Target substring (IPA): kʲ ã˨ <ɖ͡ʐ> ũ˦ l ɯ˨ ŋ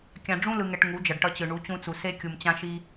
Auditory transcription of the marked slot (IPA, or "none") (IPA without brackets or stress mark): ɖ͡ʐ